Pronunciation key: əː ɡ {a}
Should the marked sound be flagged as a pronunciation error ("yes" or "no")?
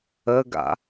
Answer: yes